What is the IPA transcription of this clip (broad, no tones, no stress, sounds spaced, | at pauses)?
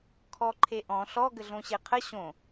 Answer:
kʰ ɔ ǃʰ e ʔ ɔ̃ ɬ ɔ ɡ ə ɮ õ ɕ e qʰ ə ɕ õ